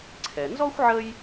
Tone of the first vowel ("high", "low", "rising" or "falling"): low